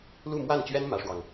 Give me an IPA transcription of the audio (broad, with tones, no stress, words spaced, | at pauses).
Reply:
lu˥˧mwa˥˩nt͡ɕɥɛ˥n mä˥ʂwɑ˨ŋ